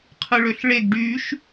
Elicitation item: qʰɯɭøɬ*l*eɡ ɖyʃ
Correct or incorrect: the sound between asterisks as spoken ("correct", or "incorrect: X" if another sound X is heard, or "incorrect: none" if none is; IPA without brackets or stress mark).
incorrect: ɭ